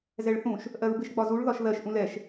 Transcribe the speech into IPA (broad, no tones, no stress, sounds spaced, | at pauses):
z ɛ ɭ θ ũ ʃ | ʔ ɜ ɹ b ɪ ʃ ɡ͡b ɒ z u ɭ ð ɒ ʃ ð ɜ ʃ ʔ ũ l ɛ ʃ